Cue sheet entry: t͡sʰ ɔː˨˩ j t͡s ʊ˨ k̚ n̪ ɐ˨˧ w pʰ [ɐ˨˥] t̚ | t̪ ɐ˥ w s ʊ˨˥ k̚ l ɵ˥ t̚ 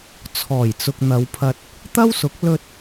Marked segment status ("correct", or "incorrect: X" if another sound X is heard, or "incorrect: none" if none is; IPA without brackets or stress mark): incorrect: ɐ˧